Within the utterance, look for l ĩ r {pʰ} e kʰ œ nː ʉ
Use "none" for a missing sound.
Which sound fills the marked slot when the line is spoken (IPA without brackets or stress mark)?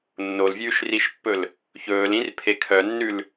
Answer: pʰ